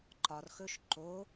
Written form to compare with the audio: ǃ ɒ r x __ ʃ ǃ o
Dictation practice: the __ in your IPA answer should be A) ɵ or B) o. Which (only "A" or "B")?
A